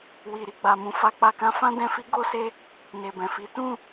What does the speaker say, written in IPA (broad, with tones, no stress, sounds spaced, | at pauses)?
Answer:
w i˨ ɾ i˨ ɡ͡b a˨ m ũ˨ f a˧ k͡p a˧ k ã˦ f ã˦ d ɛ̃˧ f i˦ ɡ o˧ s e˧ | n e˨ b ɛ̃˨ f i˨˦ t ũ˦˨